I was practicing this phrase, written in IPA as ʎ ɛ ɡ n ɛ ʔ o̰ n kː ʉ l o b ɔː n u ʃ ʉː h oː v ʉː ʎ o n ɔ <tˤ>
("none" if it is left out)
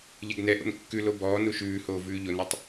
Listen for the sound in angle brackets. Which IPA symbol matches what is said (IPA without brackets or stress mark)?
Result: tˤ